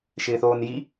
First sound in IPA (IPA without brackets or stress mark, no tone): ʃ